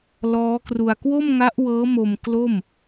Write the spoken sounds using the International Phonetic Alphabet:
lɔː˦˥kru˧a̯ kwo˥˩mŋa˦˥ʔ wɤː˦˥mo˧m klo˥˩m

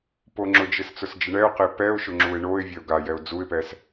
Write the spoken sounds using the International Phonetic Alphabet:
poŋ͡ǁʊd͡ʒɪs t͡sʊsd͡ʒɪɳɛʊ̯qe pɛʊ̯ʃʊ ŋ͡ǁuɪ̯ɳoɪ̯vʲɛʊ̯ ɡajɛʊ̯ d͡zuɪ̯pɛs

